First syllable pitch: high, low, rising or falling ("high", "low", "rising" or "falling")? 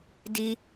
high